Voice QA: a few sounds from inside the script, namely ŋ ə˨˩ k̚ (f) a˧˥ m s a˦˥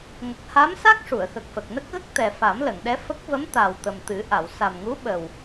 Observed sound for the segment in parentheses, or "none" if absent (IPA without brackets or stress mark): h